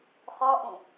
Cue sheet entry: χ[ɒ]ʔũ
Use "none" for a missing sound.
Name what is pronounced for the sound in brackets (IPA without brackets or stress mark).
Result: ɒ